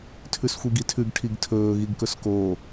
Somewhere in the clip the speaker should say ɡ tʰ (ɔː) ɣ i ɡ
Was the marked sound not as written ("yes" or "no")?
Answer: yes